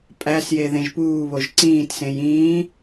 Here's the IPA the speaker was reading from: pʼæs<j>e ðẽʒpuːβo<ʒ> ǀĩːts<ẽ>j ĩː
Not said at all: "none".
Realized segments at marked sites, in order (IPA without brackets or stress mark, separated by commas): j, ʒ, ẽ